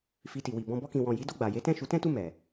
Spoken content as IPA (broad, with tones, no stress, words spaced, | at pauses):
fi˧ti˨wi˨ bɔ̃˧ bɔ˧kĩ˨wɔ̃˨ji˨˦ do˦˨ɡ͡ba˨je˨˦tɛ̃˦˨ ʃu˨˦tɛ̃˦tu˦˨ mɛ˨